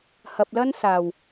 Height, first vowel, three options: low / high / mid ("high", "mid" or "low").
low